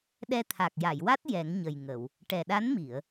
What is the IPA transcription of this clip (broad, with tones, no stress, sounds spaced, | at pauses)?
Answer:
ɗ ɛ˧ t̪ʰ a˨˩ k̚ j a˨˩˨ j w a˦˥ t̚ j ɛ˨˩˦ ŋ ɲ ə˨˩ j ŋ ə˨˩˨ w | ʈ ɛ˨˩ ɗ a˧˥ n m i˨˩˨ ə̯